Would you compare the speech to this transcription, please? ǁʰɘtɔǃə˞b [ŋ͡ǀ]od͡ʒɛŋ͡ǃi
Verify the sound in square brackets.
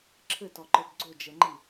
incorrect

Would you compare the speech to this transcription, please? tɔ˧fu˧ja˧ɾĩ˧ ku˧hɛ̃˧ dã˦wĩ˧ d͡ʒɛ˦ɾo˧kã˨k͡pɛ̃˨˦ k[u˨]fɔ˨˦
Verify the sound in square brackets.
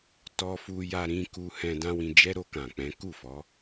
incorrect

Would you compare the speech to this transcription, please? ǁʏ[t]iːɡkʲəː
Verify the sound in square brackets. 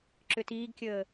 correct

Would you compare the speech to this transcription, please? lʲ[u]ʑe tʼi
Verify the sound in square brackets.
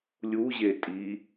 correct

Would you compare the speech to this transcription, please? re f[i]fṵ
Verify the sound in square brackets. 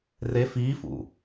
incorrect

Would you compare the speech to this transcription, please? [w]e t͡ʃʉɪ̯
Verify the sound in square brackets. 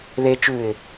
incorrect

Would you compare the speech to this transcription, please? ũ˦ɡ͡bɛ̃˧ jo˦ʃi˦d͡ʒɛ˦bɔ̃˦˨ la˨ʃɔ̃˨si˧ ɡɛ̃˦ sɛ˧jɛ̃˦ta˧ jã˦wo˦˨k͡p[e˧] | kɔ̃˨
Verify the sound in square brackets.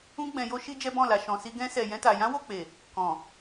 incorrect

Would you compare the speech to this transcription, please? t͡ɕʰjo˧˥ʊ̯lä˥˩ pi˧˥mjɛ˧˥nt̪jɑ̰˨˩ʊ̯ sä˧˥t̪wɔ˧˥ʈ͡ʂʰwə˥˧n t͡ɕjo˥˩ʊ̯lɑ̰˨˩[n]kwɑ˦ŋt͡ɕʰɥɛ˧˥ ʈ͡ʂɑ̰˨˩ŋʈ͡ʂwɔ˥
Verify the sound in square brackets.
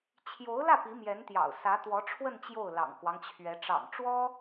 incorrect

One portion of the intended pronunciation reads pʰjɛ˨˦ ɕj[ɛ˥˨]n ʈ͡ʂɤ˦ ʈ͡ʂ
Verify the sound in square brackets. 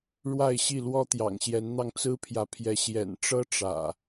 incorrect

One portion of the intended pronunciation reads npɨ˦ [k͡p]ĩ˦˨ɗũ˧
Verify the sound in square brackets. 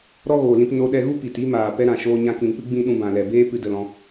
incorrect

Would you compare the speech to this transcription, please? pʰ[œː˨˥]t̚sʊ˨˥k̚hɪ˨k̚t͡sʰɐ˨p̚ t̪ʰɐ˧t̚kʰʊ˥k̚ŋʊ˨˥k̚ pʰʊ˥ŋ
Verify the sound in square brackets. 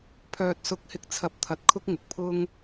incorrect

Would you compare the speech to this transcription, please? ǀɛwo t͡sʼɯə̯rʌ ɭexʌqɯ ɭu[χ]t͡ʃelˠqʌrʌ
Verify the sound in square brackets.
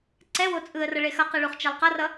correct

